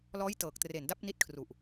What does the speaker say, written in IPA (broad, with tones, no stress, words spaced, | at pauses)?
lɔː˦˥j tɤː˨˩k̚ tre˨˩nda˦˥p̚ni˦˥t̚kʰru˨˩ʔ